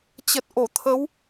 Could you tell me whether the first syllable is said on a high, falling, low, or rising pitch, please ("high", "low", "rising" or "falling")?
low